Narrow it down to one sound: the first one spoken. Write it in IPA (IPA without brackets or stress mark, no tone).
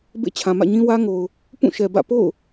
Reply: b